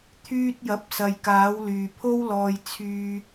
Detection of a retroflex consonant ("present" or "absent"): absent